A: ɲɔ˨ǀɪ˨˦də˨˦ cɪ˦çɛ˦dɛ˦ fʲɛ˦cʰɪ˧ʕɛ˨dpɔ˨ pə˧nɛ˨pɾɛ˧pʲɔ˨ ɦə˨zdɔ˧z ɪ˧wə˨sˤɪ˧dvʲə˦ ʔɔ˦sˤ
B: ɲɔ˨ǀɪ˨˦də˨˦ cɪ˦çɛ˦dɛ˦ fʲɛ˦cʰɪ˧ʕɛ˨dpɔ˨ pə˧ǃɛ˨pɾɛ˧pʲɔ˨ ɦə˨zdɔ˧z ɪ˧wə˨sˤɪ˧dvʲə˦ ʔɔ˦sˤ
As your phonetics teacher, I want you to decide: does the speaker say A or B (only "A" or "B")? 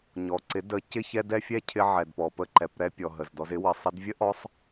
B